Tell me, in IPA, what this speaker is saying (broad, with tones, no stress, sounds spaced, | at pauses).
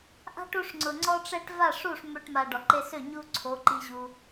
ʔ a̤˦ ʈ u˧ ʂ ŋ͡ǀ ʊ˨ ŋ͡ǀ ɔ˦ ʈ͡ʂ ɛ˦ ʈ v a˦˨ ʂ u˦˨ ʂ m ø˧ ʈ m a˧ ɖ ɔ˨ ǃ e˧ s ø˦˨ ɲ u˦ ǀʰ o˨˦ ǃ i˧ ʑ u˧